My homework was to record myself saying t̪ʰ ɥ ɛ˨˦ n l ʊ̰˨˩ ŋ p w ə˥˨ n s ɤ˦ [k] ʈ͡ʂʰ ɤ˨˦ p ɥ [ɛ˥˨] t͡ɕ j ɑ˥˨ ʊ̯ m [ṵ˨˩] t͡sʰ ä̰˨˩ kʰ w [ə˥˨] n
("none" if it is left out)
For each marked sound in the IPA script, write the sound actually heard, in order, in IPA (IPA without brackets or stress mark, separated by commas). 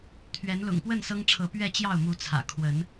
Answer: ŋ, ɛ˥˨, u˨˦, ə˨˦